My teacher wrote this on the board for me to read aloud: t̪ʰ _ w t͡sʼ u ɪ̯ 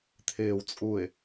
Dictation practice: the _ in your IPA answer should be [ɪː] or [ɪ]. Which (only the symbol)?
ɪː